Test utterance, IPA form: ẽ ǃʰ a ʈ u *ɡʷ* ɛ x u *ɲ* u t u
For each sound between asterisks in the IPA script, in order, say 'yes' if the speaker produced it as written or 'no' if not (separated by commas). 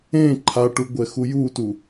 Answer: yes, no